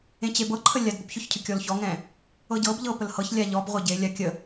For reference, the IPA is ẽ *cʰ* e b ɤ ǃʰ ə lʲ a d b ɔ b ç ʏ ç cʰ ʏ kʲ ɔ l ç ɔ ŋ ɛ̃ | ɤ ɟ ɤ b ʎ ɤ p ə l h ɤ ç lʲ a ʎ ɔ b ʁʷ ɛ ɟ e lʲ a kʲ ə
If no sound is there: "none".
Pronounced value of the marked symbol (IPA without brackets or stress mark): t͡ɕ